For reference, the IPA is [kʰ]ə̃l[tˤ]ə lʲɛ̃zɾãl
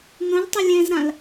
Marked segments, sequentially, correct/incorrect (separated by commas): incorrect, correct